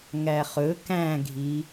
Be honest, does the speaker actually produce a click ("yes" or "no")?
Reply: no